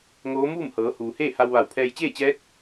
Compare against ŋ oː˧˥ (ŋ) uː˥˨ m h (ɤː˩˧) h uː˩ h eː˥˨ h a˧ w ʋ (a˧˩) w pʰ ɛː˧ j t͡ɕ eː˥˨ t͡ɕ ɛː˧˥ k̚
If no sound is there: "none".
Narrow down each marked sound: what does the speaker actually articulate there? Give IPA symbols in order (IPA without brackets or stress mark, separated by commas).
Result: m, ɤː˩˧, a˧˩